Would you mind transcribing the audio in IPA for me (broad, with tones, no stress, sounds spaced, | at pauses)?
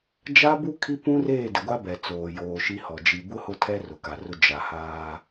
d͡ʒ a˦ b u˦ kʰ i˦ p ũ˦ r eː˦˨ d ɪ˨ ɡʷ a˦ b ɛ˨ t͡s oː˨ j oː˨ ʃ i˦ h ɔ˨ d͡ʒ i˨ b ʊ˦ h ʊ˦˨ tʰ ɛ˦ r ʊ˨ k a˨ r ʊ˦ d͡ʒ a˨ h aː˦